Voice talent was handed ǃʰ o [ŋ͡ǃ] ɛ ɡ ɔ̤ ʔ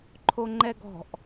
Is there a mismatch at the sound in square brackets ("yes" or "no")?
no